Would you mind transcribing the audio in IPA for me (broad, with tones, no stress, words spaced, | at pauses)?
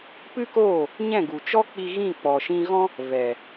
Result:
pɨ˦koː˦˨ | ɲɛ̃˦˨ɡu˨t͡ʃɔ˦k͡pi˧ ɣĩ˦˨k͡pɔ˨ʃĩ˧ɣɔ̃˦ | vɛ˨